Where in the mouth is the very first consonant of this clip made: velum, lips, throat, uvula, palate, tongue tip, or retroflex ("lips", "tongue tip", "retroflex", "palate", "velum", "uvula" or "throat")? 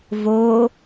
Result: lips